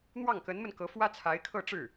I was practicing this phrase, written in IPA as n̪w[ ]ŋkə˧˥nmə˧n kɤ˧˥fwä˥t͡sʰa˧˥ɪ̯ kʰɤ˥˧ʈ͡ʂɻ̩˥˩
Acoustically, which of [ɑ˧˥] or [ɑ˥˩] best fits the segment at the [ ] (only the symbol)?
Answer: ɑ˥˩